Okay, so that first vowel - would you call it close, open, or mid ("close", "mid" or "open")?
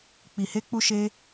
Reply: close